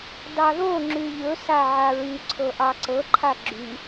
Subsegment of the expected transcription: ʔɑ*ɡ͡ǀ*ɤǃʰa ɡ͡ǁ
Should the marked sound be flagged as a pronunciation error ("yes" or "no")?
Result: yes